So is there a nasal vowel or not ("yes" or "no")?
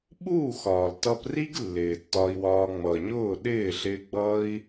no